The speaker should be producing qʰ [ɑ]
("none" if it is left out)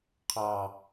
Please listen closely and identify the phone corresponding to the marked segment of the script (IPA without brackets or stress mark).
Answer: ɑ